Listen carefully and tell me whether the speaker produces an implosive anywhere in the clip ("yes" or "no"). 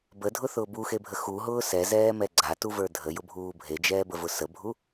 no